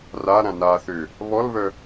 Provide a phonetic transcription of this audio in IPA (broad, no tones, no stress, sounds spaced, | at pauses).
r a ɾ ã n a θ ø | β ɔ l β œ